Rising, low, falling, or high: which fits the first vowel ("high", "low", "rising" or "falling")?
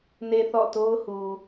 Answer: low